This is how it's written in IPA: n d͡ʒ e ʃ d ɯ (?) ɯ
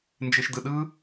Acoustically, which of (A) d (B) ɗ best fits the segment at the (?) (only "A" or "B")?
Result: B